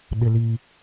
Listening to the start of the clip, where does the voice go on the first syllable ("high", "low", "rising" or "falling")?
high